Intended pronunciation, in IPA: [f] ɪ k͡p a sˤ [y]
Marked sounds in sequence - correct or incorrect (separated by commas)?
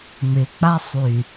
incorrect, correct